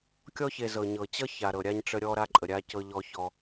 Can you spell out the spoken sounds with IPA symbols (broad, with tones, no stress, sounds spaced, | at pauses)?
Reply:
kʲ ɔ˧ ç e˨ z ɤ˨ ɲ ɤ˨ t͡ɕ ʌ˦ ç a˨ ɾ ɤ˨ ɾʲ a˧ ɲ ʈ͡ʂ ə˧ ɾʲ ɔ˧ ɾ a˧ ǃʼ ə˨ ɾʲ a˧ c ɤ˧ ʎ ɔ˧ ç ɔ˧